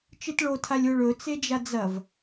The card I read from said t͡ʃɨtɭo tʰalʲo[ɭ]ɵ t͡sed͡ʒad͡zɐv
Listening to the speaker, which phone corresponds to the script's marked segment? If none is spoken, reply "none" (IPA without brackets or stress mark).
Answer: ɭ